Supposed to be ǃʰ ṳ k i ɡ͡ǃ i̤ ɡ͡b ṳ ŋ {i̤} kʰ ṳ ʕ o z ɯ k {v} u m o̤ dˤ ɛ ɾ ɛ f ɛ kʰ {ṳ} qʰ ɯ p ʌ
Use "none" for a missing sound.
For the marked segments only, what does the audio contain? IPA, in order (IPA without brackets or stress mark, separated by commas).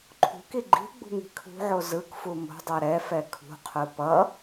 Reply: i̤, f, ṳ